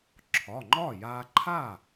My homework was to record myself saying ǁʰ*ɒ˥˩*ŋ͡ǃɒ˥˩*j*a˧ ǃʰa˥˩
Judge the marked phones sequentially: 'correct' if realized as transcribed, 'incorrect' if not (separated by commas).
incorrect, correct